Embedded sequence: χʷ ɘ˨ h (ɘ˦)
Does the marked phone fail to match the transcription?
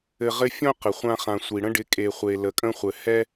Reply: yes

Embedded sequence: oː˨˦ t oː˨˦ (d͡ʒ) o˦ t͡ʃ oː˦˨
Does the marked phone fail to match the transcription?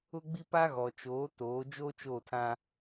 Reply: no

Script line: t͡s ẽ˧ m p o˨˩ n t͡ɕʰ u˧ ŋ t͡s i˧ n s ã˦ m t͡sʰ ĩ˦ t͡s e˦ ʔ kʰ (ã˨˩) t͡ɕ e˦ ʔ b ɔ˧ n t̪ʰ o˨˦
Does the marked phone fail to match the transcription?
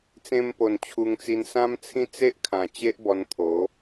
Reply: no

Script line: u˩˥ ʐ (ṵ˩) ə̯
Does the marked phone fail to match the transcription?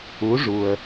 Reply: yes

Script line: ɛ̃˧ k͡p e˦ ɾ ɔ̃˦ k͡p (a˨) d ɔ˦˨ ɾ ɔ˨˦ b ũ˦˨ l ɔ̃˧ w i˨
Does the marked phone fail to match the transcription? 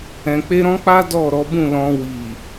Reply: yes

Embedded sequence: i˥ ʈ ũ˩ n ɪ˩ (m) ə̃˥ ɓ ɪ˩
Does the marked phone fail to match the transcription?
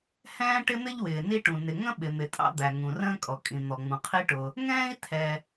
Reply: yes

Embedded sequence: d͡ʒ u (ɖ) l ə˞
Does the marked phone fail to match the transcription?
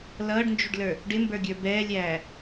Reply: no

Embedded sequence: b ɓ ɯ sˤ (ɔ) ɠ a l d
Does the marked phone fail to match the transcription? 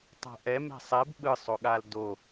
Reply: yes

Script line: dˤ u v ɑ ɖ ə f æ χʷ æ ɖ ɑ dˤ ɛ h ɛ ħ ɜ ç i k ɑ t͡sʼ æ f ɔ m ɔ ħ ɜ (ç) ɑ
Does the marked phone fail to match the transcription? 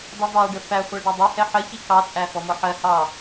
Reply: yes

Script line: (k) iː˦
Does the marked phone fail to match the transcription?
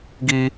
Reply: yes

